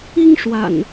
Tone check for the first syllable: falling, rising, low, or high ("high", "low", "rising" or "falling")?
high